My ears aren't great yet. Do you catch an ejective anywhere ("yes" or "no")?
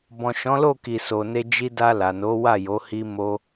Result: no